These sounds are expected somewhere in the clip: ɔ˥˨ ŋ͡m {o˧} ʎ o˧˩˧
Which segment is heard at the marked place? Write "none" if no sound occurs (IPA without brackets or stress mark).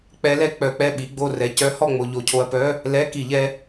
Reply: o˧